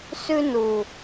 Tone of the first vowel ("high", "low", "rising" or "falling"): high